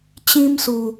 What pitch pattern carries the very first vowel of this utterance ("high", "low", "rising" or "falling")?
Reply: high